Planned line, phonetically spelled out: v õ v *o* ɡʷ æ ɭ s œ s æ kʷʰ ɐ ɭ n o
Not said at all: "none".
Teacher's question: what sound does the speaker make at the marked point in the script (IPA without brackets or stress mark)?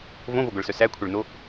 o